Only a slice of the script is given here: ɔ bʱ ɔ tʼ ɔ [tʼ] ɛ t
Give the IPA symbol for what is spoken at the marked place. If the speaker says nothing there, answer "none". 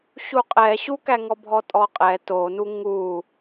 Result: qʼ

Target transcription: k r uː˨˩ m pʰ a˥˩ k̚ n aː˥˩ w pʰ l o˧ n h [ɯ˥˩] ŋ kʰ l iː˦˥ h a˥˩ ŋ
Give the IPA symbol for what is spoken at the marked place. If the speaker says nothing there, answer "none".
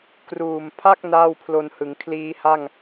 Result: ɯ˩˦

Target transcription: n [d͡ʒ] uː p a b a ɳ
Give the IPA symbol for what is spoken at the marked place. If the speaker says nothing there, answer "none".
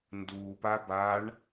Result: d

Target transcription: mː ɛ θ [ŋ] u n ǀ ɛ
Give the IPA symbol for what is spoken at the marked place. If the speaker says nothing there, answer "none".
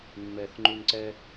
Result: ŋ͡ǃ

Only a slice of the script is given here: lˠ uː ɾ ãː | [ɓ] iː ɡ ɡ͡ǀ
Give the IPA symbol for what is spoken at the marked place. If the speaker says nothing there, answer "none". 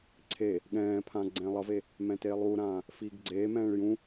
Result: f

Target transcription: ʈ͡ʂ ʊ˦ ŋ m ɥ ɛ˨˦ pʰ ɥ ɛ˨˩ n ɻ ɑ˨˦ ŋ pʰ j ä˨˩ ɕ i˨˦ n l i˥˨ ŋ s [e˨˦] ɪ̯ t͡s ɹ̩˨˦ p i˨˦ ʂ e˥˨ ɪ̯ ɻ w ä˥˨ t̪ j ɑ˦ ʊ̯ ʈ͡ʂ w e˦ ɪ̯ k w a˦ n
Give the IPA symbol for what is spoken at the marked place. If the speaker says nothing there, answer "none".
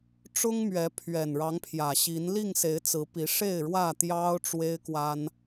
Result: e˨˦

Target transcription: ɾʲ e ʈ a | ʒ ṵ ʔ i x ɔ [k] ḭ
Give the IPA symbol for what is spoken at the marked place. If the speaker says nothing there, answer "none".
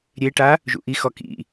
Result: k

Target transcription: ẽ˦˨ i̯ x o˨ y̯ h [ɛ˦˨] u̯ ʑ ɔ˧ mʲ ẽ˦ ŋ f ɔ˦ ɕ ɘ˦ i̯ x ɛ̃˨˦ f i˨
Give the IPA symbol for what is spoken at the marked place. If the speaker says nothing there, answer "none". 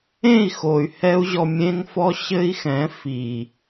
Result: ɛ˦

